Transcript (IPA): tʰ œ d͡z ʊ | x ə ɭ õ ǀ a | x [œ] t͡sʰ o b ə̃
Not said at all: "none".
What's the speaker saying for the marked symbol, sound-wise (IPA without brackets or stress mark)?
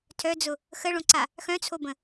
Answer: œ̃